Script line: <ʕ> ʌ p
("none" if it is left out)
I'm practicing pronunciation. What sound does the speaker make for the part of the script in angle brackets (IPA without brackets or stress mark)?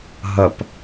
ɦ